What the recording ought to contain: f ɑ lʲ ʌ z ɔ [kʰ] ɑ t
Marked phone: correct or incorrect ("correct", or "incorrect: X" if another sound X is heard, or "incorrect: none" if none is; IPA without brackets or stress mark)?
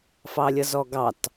incorrect: ɡ